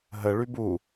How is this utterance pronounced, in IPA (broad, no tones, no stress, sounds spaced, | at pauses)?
ɦ ə ɭ y b u